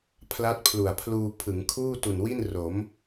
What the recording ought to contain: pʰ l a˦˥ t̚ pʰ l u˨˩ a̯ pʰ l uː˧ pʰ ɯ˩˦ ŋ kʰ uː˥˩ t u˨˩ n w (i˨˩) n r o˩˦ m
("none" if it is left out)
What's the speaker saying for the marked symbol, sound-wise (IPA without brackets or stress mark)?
i˥˩